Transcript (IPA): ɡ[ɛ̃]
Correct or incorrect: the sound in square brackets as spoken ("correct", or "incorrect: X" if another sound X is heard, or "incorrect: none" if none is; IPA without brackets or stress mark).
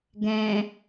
correct